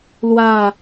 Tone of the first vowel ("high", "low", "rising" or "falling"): falling